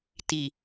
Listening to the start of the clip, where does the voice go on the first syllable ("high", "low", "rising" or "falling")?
low